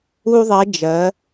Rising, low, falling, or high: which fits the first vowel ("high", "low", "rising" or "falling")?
high